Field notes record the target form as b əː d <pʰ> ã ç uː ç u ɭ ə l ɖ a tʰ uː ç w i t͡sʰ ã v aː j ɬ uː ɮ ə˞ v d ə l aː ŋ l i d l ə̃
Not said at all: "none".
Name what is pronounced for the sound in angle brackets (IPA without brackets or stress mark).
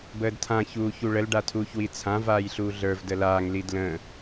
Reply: tʰ